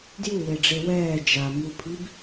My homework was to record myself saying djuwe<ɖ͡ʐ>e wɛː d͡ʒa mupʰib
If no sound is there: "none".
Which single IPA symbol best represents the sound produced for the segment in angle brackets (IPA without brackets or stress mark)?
ɖ͡ʐ